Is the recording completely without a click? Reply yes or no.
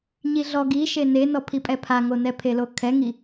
yes